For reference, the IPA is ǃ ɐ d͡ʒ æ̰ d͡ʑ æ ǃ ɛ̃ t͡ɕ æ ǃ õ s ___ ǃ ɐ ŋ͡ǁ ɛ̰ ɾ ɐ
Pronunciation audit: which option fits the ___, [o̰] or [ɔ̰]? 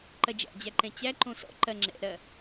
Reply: ɔ̰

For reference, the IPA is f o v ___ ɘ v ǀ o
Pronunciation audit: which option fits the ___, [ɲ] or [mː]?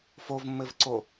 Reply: mː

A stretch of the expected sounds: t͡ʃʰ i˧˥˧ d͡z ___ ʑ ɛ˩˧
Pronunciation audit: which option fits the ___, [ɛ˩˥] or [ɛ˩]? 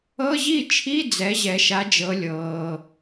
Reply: ɛ˩˥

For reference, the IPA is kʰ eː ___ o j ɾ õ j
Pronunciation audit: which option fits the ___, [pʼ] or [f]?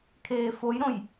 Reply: f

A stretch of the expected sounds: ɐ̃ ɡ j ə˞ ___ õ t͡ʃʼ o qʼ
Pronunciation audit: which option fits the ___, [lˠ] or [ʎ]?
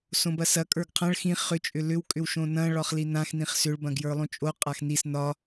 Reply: lˠ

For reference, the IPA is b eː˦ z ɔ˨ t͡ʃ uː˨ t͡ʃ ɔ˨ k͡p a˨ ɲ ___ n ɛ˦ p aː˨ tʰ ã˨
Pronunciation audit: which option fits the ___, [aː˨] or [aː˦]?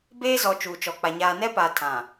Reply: aː˨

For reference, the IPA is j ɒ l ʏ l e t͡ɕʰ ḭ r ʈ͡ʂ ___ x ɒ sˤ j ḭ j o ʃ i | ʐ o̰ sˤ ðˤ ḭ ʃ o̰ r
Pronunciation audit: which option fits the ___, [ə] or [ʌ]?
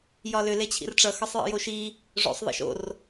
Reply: ʌ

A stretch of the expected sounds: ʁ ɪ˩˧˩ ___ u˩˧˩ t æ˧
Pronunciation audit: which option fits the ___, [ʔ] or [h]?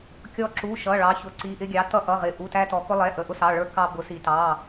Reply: ʔ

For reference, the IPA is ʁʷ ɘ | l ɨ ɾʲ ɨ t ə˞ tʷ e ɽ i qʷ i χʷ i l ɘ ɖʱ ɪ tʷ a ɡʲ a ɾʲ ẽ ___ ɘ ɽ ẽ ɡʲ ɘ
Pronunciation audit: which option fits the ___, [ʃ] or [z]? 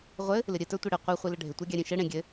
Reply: ʃ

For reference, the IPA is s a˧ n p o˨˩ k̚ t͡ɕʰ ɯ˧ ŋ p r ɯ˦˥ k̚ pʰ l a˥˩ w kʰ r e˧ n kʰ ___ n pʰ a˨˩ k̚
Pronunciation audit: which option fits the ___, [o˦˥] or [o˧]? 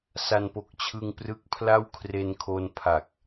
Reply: o˧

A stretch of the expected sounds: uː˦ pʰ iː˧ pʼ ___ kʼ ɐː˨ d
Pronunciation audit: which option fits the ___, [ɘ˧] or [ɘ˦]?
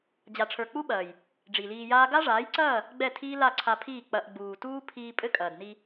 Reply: ɘ˦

